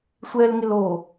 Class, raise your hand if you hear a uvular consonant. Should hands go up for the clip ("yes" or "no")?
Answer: no